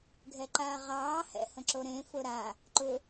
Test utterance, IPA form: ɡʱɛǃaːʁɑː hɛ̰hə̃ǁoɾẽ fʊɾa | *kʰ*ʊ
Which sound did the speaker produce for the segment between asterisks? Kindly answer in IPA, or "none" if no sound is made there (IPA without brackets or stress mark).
ǃ